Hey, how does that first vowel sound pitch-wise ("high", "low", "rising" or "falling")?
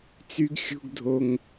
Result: high